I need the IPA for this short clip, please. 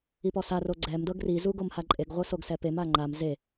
ipɔsa roɡ͡ǀɛm dɤɡri zuɡomhaǃʼeɡ ʁʷɯsoɡsɛpem aŋ͡ǃam ze

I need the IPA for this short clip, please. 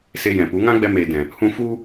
se˧ jɛ̃˨pu˨˦ ŋã˦ɡ͡bɛ˧meː˨dɛ̃˨ | hũ˧fu˦

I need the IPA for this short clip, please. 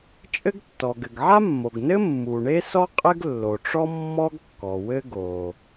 t͡ʃʼɘ˥ɡtːɔ˩ ɡɘ˩ɡʕa˥mːo˩ɡnɘ˥ mːu˩ɳe˥sɔ˥ qʼɘ˥ɡlːo˩ʈ͡ʂɔ˥ mːɔ˥ɡkːɔ˩ wɘ˥ɡo˩

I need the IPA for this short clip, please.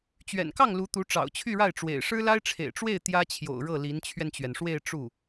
t͡ɕɥɛ̰˨˩nkɑ˥˩ŋ lu˧˥t̪u˧˥ ʈ͡ʂɑ̰˨˩ʊ̯t͡ɕʰy˥˧ɻa˥˩ɪ̯ ʈ͡ʂwḛ˨˩ɪ̯ ʂɻ̩˥la˥ɪ̯ʈ͡ʂʰḛ˨˩ɪ̯ʈ͡ʂwe˥˩ɪ̯ t̪jä˥t͡ɕʰjo̰˨˩ʊ̯ɻɤ˥˩ li˧˥nt͡ɕʰɥɛ˧nt͡ɕɥɛ˩nʂwe˥˧ɪ̯ ʈ͡ʂu˥˩

